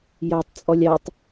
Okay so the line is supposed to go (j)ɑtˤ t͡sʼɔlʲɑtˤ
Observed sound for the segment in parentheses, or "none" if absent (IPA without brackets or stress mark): j